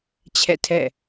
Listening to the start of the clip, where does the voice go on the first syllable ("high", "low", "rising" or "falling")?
falling